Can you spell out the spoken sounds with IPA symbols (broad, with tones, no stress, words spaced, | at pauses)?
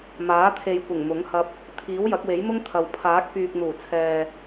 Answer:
maː˨˥t̪ʰe˨jkʷɪ˨˩ŋ mʊ˨˥ŋhɐ˧p̚ | t̪ʰiː˨˥wjɐ˨˥k̚we˨˥j mʊ˥ŋ t̪ʰɐ˨w pʰaː˨˥k̚pyː˨k̚n̪uː˨˩t͡sʰɛː˨